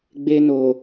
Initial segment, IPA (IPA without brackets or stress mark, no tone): ɡ͡b